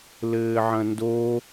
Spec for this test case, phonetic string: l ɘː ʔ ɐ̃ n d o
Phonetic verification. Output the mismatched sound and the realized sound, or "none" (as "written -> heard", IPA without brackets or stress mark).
ʔ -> ʕ